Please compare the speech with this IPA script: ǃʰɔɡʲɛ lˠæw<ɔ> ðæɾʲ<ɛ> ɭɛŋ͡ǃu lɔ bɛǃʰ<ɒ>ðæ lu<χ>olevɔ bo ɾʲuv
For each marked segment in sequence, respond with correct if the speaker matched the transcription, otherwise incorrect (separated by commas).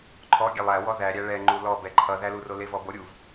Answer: correct, incorrect, incorrect, incorrect